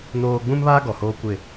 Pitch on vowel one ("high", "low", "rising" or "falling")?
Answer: high